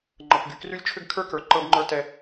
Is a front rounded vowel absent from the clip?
no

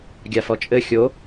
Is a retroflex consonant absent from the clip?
yes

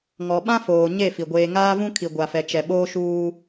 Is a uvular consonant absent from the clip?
yes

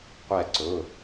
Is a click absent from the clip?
no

